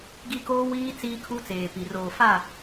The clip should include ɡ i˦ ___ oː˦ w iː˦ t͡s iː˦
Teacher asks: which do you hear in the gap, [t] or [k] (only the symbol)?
k